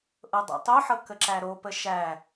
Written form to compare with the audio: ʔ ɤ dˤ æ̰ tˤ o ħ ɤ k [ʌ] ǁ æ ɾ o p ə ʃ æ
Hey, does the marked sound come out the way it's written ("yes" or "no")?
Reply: no